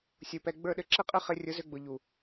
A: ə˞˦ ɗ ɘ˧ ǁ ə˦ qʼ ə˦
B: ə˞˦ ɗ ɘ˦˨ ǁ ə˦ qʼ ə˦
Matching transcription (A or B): A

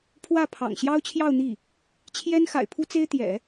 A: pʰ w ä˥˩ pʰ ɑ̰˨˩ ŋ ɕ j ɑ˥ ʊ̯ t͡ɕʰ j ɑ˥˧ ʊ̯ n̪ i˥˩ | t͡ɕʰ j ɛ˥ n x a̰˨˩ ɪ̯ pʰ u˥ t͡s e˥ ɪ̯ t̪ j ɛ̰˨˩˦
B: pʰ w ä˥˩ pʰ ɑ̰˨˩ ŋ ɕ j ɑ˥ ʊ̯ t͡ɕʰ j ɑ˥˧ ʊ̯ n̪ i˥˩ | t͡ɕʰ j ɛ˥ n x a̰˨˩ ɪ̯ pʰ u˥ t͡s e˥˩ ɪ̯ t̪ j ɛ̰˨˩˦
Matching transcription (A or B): A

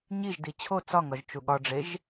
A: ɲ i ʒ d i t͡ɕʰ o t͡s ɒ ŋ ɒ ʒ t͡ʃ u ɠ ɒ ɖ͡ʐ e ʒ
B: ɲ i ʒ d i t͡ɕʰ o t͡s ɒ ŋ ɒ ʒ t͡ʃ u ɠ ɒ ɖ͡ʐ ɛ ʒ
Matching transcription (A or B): A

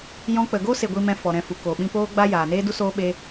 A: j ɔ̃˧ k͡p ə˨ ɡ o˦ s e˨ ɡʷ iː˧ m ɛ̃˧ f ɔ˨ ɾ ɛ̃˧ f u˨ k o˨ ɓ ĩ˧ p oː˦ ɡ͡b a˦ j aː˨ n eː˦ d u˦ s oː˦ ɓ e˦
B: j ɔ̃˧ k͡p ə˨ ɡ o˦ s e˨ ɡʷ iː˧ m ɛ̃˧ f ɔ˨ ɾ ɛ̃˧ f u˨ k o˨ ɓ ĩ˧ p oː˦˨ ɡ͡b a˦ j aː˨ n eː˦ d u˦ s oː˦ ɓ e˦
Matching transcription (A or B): A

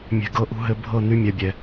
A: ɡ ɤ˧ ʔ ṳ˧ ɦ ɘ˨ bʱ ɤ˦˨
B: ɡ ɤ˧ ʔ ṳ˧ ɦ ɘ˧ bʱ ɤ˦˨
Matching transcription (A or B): B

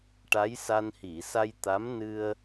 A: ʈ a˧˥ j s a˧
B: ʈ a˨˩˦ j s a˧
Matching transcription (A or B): A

